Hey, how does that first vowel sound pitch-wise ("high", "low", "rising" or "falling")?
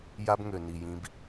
high